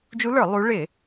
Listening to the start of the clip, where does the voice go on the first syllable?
rising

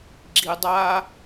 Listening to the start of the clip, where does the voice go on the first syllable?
low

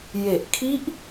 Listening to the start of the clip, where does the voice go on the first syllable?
low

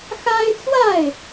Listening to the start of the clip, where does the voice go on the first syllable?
high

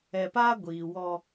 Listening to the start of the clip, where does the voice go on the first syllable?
low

